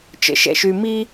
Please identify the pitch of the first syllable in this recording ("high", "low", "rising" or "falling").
high